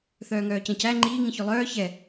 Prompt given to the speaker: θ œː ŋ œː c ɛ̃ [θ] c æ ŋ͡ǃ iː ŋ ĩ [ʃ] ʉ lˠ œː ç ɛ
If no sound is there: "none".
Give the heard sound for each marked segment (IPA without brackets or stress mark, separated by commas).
none, ç